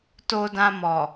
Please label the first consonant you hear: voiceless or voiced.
voiceless